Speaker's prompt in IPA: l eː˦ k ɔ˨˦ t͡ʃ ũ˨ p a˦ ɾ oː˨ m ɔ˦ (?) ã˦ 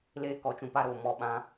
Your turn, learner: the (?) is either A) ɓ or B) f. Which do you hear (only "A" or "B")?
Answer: A